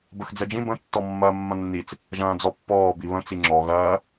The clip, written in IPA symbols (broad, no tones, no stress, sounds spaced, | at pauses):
b ə x d͡z ɛ d͡ʒ ĩ b ə̃ tː ɔ mː ɐː mː ɐ̃ nː i t͡s | ʒ ɐ̃ː d͡z ɔ pː ɔː b i β ə̃ t͡s i ŋ͡ǁ ɔ ɣ ɐː